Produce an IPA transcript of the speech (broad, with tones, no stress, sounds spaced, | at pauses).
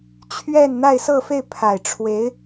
t͡ɕʰ ɥ ɛ˥˧ n n̪ a˥˧ ɪ̯ s ɤ˥˧ f e˥˩ ɪ̯ pʰ a˨˩ ɪ̯ ʈ͡ʂʰ w e˧˥ ɪ̯